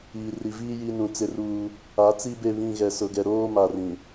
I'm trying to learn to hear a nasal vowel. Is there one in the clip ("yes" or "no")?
yes